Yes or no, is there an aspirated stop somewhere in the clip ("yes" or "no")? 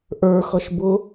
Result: no